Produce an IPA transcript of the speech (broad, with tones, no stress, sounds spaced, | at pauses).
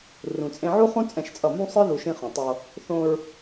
r ũ˨ t͡sʼ ẽ˦ ʕ u˦ χ ũ˦ t͡sʼ ɛ̃˦˨ ʃ t͡sʼ ʌ˦˨ m ũ˦ sˤ ɯ˦ ð u˨ ʃ ĩ˦ χ õ˨ tˤ o˦ | θ õ˦ ɹ